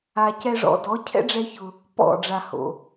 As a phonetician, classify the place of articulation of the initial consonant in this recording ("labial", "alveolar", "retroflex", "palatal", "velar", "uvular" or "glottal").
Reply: palatal